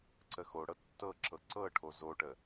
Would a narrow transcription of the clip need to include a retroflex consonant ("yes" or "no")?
yes